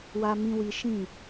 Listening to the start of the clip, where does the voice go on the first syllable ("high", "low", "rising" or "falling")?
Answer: high